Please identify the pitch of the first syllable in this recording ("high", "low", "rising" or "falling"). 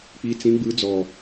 rising